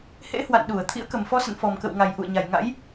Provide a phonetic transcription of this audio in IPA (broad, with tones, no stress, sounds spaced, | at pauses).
h ḛ˧˥ h w a̰˧˨ n ɗ u˧˩ ə̯ t̪ʰ ḭ˧˥ ə̯ k ə˨˩ m f ɔ˧ s ə̰˧˨ n f ɔ˨˩ m k ə̰˧˨ w ŋ a˨˩ j ʔ ṵ˧˨ ə̯ ɲ a˨˩ j ŋ a̰˧˥ j